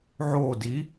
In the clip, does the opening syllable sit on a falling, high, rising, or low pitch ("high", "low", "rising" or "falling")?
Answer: falling